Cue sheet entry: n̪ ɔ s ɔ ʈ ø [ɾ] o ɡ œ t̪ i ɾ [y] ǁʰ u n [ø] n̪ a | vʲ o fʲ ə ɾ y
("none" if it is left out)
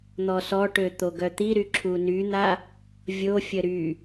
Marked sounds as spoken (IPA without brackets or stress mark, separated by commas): t̪, y, y